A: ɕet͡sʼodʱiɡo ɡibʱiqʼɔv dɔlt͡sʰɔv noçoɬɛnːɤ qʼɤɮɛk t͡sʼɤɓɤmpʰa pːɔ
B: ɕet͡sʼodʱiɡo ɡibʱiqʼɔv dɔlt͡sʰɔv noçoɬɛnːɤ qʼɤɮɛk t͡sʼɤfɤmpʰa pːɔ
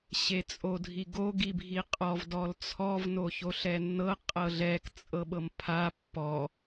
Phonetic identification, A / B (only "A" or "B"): A